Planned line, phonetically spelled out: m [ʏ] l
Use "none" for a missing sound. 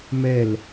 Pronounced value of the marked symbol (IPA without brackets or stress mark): ɛ